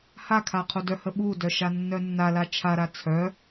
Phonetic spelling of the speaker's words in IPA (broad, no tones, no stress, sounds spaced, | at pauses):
h a kʰ a qʰ o d œ h ə ɓ u d œ ʃ a nː œ nː a l a t͡ʃʰ a ɾ a t͡sʰ œ